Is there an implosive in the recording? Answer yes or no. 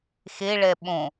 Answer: yes